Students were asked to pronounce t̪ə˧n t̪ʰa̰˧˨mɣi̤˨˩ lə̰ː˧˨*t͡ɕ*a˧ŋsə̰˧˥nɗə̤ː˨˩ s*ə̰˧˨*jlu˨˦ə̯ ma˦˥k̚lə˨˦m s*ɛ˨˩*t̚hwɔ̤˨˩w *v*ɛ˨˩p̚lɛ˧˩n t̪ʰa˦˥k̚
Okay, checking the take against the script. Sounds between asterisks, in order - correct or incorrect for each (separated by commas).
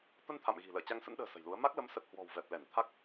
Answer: correct, incorrect, incorrect, correct